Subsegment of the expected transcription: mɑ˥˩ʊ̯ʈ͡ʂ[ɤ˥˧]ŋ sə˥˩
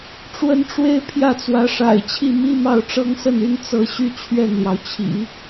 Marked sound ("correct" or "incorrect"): incorrect